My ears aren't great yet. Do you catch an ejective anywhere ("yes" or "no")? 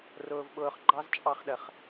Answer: yes